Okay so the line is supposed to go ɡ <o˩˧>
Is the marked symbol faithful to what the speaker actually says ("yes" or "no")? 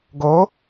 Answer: yes